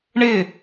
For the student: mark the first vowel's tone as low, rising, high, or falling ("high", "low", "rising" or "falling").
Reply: falling